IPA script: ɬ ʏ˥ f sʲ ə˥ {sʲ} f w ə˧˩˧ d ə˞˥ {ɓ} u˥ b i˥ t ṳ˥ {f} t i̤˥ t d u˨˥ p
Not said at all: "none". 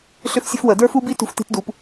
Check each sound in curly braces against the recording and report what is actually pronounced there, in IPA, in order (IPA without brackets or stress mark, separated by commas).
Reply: none, f, f